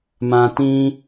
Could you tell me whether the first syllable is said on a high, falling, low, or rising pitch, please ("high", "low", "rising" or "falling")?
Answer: low